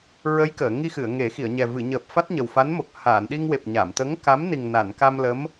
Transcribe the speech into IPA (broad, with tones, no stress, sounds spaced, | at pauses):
ɹ ə˧˥ j k əː˨˩˨ ŋ i˧ x ɨ˨˩˨ ə̯ ŋ e˨˩˦ x i˨˩˨ ə̯ ɲ ɛ˨˩ v ɨ˨˩˨ ɲ əː˨˩ p̚ f a˦˥ t̚ ɲ ə˨˩ w f a˧˥ n m o˨˩ k̚ h aː˨˩˨ n ɗ i˧ ŋ w e˨˩ p̚ ɲ a˨˩˨ m t̪ ə˧˥ ŋ k a˧˥ m n i˨˩ ŋ n a˨˩˨ n k a˧ m l ə˧˥ m